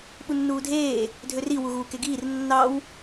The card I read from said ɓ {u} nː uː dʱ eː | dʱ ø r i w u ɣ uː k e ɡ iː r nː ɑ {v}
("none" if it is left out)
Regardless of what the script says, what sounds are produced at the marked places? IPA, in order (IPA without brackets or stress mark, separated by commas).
u, w